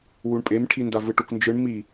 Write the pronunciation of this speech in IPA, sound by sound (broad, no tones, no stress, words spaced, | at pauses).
wuɳpʼemʈʰinda vɯʈuknd͡ʒɯɳ mi